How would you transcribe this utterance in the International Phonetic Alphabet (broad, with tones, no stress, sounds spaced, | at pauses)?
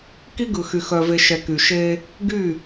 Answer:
k i˦ ɡ ɯ˨ x y˨ x œ˨ v e˨ ʃ ɛ˨ k y˨ ʃ e˦ | ɡ y˦˨